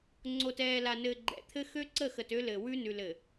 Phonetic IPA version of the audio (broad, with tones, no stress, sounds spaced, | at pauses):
ŋ͡ǀ o˨ t ɛː˨ l a˨ n ɘː˨ ɡ͡ǃ ɛ̰˨ t̪ʰ ɘ˦ x ø˦ ǀ ə˦˨ x ə˨ t ø˦ l ɘ˨ w ʉ˦ n ʉ˨ l ɘ˨